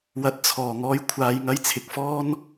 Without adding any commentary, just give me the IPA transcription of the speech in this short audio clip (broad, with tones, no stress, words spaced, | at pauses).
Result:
wɐ˨t̚t͡sʰɔː˨˩ ŋɔː˧jkʷʰaː˨jŋɐ˧j t͡sʰɪ˨k̚fɔː˥n